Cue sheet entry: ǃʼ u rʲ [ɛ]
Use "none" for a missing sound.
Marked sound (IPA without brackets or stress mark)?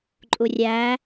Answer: æ